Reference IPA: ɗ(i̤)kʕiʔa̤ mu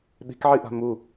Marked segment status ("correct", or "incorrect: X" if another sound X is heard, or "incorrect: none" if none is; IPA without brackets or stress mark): correct